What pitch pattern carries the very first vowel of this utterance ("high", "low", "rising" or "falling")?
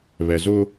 low